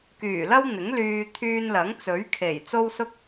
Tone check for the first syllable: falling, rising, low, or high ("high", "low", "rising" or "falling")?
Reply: low